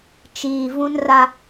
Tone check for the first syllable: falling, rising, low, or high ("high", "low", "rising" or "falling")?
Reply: low